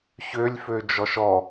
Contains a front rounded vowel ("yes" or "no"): yes